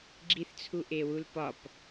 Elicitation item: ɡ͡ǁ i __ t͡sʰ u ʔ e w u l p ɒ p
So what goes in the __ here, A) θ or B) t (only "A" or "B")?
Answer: A